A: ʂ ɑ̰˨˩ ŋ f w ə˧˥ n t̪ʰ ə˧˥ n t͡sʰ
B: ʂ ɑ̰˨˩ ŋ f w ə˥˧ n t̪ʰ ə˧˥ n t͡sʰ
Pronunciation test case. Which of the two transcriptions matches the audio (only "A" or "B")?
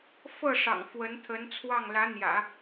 A